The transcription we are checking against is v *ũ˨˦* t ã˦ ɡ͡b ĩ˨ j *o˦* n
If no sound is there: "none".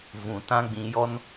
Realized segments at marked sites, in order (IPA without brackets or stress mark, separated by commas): ũ˨, ɔ˦